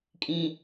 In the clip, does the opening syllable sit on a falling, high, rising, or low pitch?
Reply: high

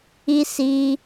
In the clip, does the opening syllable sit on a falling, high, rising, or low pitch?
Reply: high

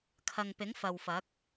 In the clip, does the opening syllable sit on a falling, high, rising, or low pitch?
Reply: low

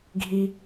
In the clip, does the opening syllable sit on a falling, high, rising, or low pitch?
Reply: high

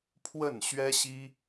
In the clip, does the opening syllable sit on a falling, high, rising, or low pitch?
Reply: falling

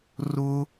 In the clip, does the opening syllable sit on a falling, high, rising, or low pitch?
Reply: high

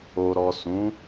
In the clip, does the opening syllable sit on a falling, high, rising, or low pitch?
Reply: low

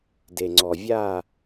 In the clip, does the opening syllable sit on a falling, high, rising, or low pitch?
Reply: low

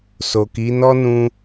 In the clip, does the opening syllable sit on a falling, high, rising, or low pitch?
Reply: low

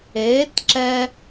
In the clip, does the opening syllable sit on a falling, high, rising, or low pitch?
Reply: rising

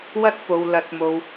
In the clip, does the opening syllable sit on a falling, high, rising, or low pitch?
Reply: high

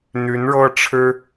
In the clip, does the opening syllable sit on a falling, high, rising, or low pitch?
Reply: rising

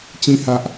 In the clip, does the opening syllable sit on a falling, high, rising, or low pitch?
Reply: high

